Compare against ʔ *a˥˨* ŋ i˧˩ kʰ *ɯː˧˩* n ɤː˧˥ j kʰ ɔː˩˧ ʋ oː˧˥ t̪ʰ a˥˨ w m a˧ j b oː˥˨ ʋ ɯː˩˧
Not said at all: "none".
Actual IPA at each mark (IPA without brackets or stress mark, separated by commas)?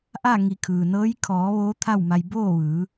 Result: a˥˨, ɯː˩